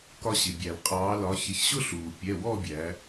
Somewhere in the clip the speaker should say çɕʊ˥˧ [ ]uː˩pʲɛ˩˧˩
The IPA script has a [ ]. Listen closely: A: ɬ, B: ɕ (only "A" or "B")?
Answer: A